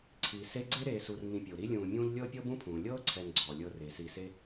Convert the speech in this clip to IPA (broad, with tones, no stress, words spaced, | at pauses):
ǀʰi˩ se˦ɡ͡ǀe˥ ɾeː˨su˨rŋĩ˨pʲo˩ ɾi˦lʲũː˨mʲũː˦ʎ lʲɤː˥pʲɤ˥bũ˥pʰũː˩ lʲɤː˥ǀʰɛ˨ŋ ɡ͡ǀɔ˩ lʲɤ˨re˩ si˨se˦